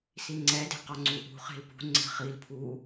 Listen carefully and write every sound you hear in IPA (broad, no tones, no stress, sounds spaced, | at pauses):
s i ŋ͡ǀ ɛ d e̤ q ɔ ŋ͡ǀ u ʔ ṳ χ e̤ l p ṳ ŋ͡ǀ e̤ χ i l pʰ u